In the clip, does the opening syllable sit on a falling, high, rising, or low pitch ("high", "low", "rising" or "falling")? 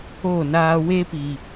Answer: falling